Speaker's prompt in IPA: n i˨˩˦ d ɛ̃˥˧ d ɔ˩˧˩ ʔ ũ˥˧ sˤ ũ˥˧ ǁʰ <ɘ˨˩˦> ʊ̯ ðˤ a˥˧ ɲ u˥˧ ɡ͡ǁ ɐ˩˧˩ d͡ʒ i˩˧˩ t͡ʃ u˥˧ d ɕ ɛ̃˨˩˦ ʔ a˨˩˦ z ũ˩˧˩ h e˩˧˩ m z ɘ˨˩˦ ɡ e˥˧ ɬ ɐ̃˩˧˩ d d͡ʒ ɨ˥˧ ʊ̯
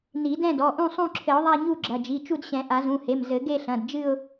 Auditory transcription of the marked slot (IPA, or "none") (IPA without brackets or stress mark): ɘ˨˩˦